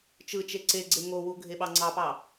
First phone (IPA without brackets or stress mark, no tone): t͡ʃ